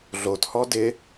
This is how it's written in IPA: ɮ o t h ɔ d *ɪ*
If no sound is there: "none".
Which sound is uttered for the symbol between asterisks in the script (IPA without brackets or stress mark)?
ɪ